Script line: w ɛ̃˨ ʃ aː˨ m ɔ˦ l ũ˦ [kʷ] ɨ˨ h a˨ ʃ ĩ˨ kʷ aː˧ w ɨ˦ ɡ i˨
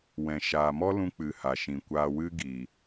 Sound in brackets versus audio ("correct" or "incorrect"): incorrect